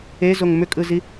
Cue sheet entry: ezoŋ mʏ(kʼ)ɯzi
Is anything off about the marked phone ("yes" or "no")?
no